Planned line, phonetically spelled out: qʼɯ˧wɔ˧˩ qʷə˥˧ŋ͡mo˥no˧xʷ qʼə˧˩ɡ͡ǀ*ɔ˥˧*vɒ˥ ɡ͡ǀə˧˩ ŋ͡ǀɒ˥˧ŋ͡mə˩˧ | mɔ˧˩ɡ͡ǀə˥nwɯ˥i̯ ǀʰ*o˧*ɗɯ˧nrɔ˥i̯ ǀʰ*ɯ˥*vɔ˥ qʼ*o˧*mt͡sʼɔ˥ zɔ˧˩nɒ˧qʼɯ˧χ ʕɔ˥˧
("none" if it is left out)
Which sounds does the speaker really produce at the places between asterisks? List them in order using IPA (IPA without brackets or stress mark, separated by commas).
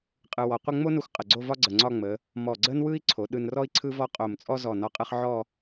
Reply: o˥˧, o˩˧, ɯ˥, o˧˩